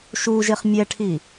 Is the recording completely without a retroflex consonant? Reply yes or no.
no